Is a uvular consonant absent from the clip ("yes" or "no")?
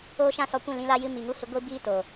yes